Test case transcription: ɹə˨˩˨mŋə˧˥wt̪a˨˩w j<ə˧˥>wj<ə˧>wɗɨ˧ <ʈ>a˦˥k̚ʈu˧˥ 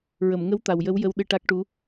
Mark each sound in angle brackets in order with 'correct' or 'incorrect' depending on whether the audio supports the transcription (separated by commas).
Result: correct, correct, correct